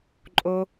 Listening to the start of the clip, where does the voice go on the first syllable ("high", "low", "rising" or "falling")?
high